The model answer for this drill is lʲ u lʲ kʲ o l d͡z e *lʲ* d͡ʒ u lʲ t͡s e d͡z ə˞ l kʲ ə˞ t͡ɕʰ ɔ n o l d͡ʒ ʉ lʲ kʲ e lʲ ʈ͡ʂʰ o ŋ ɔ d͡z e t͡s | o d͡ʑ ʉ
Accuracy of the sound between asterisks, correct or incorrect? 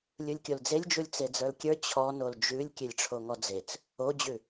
correct